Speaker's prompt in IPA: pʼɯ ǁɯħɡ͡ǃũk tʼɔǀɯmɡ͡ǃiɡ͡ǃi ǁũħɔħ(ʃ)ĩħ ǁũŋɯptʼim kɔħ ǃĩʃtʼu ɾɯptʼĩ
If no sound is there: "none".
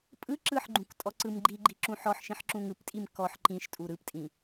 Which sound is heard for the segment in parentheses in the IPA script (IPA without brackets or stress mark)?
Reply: ʃ